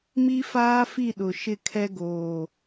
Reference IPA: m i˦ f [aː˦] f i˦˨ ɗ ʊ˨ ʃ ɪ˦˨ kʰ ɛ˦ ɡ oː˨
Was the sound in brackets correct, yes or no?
yes